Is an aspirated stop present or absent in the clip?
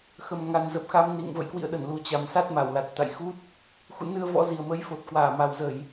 absent